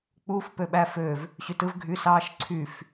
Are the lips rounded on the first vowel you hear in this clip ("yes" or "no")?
yes